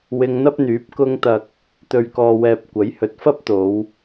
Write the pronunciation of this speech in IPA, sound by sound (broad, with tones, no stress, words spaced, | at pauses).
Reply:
wɪ˧ŋn̪ɐ˥p̚n̪yː˨˥p̚ kʊ˧ŋt̪ɐ˨k̚ | t̪ɵ˨ɥkɔː˨wɛː˨p̚ kʷɐ˨˥jhɵ˨˥t̚fɐ˥p̚t̪o˨˧w